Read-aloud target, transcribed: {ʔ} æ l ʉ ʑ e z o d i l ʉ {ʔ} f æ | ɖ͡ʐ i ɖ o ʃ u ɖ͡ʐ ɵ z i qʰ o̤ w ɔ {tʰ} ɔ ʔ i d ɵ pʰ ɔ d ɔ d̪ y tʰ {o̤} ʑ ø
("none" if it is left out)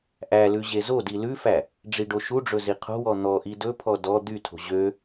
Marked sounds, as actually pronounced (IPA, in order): ʔ, none, n̪, o̤

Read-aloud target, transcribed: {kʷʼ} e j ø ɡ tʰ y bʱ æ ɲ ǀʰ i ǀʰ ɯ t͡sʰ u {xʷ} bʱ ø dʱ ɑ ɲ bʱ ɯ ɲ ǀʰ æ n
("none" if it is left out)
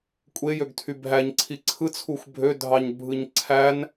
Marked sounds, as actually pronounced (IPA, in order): kʷʼ, xʷ

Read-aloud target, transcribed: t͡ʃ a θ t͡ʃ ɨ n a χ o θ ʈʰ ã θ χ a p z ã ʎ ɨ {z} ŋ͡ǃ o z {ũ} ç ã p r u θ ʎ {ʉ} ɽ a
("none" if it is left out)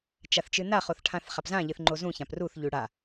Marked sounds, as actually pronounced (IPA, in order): θ, ũ, ʉ

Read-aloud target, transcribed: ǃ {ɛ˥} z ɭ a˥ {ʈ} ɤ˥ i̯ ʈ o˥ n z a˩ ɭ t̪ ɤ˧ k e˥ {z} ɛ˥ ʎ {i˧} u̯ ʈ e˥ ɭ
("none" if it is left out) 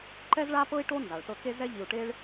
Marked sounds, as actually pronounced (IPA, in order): ɛ˥, p, z, i˧

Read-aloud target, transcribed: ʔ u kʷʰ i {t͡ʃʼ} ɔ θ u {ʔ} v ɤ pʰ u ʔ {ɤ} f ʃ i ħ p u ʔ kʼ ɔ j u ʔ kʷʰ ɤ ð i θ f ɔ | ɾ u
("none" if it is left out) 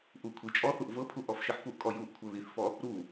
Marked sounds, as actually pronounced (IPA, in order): t͡ʃʼ, ʔ, ɔ

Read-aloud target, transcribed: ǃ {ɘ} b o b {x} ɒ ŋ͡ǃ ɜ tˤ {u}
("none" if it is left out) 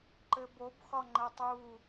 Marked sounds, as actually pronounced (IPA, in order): ɘ, x, u

